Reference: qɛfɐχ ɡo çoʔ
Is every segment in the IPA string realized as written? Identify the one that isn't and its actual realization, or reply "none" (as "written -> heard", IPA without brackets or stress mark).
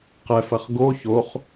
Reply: ʔ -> χ